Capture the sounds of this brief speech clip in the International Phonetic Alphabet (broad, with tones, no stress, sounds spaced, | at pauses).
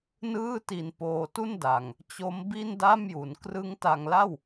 n ɯː˥˩ t i˧ n p oː˧ t u˥˩ n d a˨˩ ŋ | t͡ɕ o˦˥ m b i˥˩ n d a˥˩ m j u˩˦ n k r ɯ˦˥ ŋ t a˧ ŋ l a˥˩ w